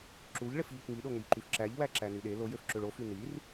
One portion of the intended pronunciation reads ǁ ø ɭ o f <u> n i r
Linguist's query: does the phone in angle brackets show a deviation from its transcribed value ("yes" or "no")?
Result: yes